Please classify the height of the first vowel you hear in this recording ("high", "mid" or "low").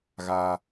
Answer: low